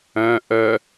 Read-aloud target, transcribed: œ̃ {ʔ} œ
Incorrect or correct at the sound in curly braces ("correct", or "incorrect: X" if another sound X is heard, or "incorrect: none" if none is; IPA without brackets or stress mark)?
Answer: correct